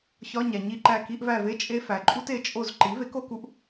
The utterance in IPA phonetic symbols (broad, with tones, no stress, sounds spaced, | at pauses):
ç ɒ˧˥˧ ɲ æ˨ ɲ i˦˨ ǃ æ˦˨ k i˧˥˧ ʔ v æ˦˨ v e˧˥˧ t͡ʃʼ e˦˥ f æ˩˥ ǃʼ u˦˥ t e˩˥ t͡ʃʼ o˦˨ z ǃ i˩˥ v e˩˥ k o˧˥˧ k u˦˥ ʔ